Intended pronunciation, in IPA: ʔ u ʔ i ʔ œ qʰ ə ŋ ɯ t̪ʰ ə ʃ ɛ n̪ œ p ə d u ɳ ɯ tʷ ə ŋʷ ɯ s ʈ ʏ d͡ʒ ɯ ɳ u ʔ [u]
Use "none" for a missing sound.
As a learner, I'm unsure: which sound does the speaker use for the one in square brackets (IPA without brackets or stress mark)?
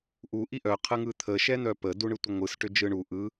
ɯ